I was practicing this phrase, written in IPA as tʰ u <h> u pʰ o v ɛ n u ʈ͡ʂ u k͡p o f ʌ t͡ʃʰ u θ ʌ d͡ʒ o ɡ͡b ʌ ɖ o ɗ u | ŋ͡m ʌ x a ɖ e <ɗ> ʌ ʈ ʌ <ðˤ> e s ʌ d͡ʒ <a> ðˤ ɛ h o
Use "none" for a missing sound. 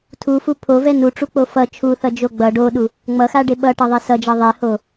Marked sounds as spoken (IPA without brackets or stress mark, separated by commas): f, ɓ, ðˤ, ʌ